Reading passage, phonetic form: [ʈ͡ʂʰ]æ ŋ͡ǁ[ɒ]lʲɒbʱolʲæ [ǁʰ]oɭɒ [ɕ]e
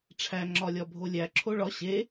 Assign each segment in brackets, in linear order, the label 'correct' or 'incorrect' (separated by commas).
correct, correct, correct, correct